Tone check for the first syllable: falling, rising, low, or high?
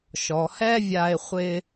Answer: low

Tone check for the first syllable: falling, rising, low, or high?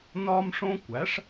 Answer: high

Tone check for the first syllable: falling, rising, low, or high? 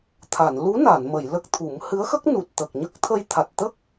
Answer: low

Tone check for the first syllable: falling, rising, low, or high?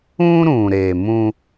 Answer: high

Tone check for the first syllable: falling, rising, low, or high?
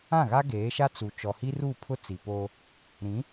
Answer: falling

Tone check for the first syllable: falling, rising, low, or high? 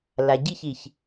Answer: low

